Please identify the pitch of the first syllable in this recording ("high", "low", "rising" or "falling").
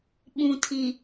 low